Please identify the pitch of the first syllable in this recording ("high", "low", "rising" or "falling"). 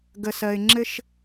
low